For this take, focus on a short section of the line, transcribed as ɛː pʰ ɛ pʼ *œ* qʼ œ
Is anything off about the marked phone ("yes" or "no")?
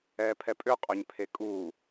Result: yes